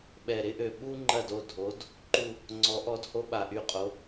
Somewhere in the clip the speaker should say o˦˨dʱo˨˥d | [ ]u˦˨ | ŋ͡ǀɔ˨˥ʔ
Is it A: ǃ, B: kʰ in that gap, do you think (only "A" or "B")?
A